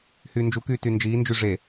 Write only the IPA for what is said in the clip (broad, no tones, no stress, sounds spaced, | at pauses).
h yː n d͡ʒ u k yː t y n d͡ʒ iː n d͡ʒ y ʐ e